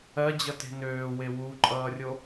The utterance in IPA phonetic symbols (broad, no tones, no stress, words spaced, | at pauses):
ɜd͡ʑʌte̤ nøːwe wuǃʼʌːrʲo